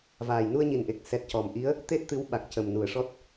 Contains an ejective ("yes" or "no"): no